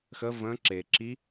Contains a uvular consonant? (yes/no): no